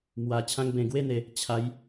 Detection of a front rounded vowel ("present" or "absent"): absent